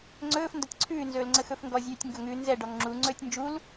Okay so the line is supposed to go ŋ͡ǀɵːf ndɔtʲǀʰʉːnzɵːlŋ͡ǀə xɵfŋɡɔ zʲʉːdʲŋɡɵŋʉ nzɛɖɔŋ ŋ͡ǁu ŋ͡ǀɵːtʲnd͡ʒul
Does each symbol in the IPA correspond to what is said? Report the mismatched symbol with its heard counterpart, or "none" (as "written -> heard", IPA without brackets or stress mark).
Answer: dʲ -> tʲ